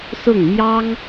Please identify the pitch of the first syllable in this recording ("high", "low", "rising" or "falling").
falling